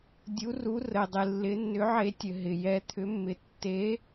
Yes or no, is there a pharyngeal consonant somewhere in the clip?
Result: yes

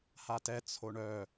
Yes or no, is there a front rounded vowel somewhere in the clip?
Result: yes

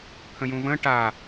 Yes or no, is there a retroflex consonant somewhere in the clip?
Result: yes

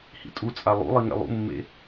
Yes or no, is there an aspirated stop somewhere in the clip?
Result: no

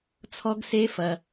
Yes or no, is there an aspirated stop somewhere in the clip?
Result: yes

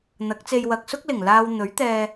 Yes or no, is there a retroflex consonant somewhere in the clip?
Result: no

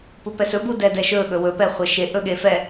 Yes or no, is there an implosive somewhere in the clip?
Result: yes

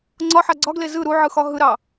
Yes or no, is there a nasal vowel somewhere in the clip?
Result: no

